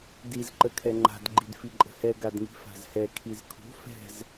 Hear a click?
yes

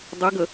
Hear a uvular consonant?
no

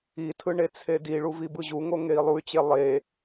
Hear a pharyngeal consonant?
no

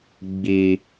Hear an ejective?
no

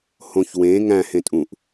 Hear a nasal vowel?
yes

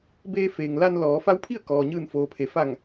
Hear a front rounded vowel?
no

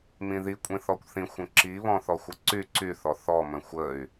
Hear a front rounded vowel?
yes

